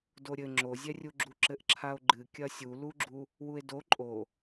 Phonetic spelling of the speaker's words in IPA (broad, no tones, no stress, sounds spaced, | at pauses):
d o ɾʲ ɘ ŋ͡ǁ o zʲ ɛ rʲ u ɡ͡ǁ u ǁ ɘ ʔ ǁʰ a o̯ ɡ͡ǃ ɨ kʲ ɐ sʲ u l u ɡ͡ǁ u | w u e̯ d o ǃʼ o